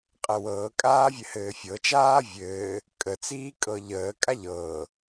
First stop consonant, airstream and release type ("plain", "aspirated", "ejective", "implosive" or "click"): ejective